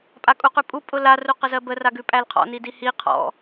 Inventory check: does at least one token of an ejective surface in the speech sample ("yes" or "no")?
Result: yes